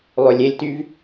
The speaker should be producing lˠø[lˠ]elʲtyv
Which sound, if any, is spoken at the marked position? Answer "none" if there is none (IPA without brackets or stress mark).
lʲ